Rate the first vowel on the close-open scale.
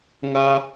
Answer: open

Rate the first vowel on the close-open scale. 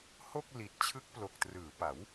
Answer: mid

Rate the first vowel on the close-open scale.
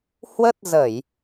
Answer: mid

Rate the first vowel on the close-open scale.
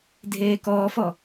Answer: mid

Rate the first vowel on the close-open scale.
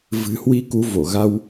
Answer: close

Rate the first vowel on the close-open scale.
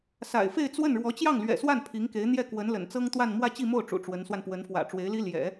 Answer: open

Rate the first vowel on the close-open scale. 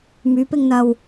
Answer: close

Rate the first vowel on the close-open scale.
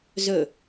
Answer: mid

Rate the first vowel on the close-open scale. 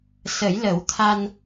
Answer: mid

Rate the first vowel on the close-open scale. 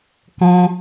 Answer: mid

